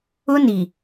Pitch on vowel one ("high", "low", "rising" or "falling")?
high